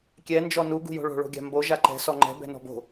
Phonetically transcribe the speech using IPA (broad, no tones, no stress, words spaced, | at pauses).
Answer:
kʲɛ nd͡ʒɔnu ɡṳjo̤ɭo̤ ɭo̤ɡʲa̤mbo ʒaǃɛ̤ sɔŋ͡ǃɛ̤ bɛ̤nɔ̤bo̤